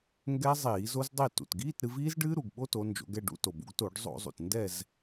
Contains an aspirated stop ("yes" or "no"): no